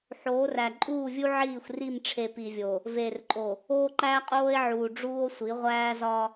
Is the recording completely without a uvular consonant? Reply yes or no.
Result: no